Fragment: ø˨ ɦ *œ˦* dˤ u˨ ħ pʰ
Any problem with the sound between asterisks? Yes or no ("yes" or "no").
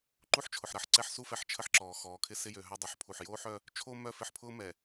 no